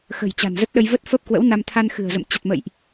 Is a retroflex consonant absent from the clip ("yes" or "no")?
yes